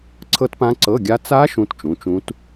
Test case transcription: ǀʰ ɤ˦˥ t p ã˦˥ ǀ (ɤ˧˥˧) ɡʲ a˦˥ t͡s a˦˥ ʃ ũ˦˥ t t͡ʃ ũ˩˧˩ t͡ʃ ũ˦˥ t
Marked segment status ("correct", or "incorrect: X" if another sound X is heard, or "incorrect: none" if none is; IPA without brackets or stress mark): correct